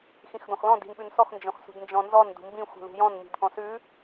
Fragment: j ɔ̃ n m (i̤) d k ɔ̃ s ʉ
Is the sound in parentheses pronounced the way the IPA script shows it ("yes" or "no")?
yes